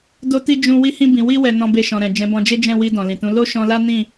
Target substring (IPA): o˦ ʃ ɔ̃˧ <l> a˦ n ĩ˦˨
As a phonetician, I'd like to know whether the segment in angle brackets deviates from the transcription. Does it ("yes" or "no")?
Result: no